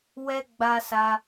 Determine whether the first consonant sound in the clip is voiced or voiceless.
voiced